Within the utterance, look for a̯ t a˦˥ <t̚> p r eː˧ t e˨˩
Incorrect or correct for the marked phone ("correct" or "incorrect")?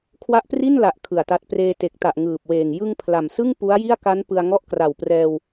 correct